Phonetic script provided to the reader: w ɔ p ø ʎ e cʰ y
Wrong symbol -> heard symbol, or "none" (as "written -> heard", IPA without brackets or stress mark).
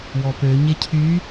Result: ʎ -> ɲ